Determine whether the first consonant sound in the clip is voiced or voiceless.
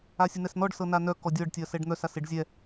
voiceless